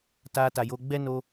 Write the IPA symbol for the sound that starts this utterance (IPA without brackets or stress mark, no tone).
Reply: t